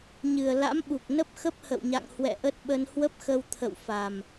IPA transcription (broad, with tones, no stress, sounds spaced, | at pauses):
ɲ ɨ˨˩ ə̯ l a̰˧˥ m ɓ u˨˩ k̚ n ə˦˥ p̚ x ə˦˥ p̚ h ə̰˧˨ w ɲ a̰˧˨ ŋ h w ɛ̰˧˨ ʔ ə˦˥ t̚ ɓ ə˧ n h w ə˦˥ p̚ x ə˧ w t̪ʰ ə̰˧˨ w f a˨˩ m